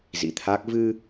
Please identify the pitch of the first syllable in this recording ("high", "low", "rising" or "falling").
rising